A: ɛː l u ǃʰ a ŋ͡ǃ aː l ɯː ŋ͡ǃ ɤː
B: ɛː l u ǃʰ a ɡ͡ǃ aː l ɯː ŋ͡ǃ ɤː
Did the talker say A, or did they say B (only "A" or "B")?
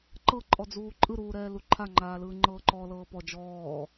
A